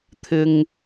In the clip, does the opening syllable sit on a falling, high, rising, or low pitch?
low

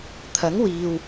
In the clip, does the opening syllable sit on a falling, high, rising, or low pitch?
rising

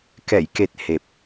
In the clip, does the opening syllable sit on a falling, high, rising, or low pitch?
low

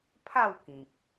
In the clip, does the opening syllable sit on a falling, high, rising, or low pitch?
falling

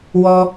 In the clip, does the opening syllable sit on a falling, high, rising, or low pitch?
high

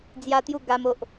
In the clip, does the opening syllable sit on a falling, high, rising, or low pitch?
high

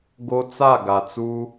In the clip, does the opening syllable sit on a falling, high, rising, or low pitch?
high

